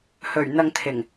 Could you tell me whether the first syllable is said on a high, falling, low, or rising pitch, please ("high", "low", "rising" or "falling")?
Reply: low